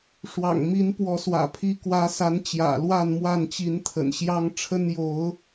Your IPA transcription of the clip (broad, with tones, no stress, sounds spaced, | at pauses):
ʂ w ɑ̰˨˩ ŋ m i˨˦ n p w ɔ˨˦ s w ä̰˨˩ pʰ i˨˦ k w ä˨˦ s a˨˦ n t͡ɕ j ä̰˨˩ l w a˥˨ n m w a˥˨ n t͡ɕ i˨˦ n t̪ʰ ə̰˨˩ n ɕ j ɑ˦ ŋ ʈ͡ʂʰ ə˦ n j o˨˦ ʊ̯